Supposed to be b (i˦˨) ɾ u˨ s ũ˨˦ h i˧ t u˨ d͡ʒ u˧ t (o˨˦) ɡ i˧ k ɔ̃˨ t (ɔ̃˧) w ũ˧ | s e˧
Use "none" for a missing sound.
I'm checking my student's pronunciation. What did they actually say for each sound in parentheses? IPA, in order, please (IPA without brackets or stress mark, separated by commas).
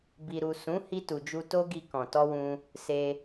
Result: i˨, o˦, ɔ˧